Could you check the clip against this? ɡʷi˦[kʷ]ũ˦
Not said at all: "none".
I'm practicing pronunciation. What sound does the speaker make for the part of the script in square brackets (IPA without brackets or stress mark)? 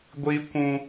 kʷ